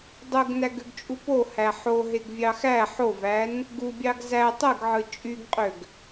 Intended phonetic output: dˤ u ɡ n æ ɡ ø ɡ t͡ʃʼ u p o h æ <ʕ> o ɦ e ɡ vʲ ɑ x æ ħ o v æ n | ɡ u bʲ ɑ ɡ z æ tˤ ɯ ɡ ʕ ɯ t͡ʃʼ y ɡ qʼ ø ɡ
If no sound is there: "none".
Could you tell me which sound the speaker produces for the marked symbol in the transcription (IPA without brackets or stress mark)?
ħ